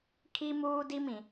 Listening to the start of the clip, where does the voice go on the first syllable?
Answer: high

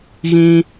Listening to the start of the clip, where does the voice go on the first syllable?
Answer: high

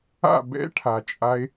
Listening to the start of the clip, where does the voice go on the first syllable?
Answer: falling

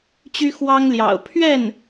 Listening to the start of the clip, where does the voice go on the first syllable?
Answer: high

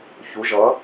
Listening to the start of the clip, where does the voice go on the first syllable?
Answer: rising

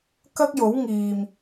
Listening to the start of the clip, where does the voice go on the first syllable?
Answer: high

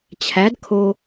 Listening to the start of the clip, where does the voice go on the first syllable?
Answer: rising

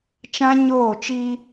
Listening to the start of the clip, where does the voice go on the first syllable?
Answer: high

